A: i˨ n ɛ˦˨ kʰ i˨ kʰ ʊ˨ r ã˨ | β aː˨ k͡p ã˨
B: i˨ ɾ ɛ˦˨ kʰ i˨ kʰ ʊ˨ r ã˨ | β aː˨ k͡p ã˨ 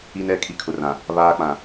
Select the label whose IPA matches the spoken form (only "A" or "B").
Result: A